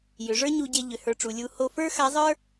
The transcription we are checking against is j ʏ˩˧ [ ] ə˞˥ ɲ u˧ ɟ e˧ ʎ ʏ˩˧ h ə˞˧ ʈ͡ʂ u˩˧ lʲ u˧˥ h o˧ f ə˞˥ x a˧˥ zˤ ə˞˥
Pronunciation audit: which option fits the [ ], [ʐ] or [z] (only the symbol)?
ʐ